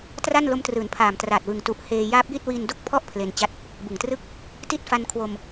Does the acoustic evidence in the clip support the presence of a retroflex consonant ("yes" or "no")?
no